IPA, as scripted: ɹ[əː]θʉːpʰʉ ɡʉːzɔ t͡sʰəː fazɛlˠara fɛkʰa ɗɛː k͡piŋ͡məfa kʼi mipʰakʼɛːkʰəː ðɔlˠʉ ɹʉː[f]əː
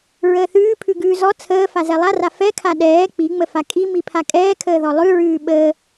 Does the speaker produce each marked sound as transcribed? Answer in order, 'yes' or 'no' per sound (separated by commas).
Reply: yes, no